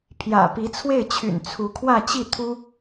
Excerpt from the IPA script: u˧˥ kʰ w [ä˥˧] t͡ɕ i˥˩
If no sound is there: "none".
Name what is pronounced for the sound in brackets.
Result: ä˥˧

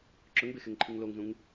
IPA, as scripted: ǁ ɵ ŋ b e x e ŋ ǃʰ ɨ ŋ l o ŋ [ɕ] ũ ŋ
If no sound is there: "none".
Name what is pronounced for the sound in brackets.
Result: z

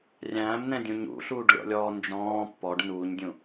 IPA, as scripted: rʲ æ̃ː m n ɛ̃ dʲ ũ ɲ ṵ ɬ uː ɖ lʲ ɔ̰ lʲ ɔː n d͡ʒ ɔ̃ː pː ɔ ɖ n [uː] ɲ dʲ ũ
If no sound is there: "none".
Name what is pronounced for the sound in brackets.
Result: uː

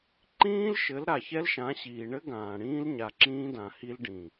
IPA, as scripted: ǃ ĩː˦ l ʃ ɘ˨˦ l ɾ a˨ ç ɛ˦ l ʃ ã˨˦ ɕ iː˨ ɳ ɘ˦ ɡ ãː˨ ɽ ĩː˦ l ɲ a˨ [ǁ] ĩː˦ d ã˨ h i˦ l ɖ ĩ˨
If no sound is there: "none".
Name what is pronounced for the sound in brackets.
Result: ǁ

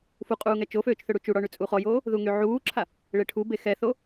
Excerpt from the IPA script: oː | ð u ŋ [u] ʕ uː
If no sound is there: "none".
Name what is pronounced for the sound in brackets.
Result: y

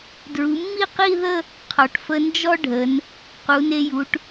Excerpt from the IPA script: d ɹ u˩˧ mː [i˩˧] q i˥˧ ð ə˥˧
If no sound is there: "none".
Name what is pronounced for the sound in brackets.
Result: i˥˧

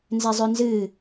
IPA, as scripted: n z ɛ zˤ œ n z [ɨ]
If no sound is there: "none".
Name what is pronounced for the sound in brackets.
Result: ɨ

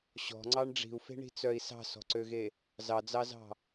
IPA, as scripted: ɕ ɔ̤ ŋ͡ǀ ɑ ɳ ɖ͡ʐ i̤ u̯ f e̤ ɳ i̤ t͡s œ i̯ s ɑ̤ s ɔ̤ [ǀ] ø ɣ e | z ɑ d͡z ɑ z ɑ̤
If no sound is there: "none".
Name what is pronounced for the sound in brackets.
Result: ǀ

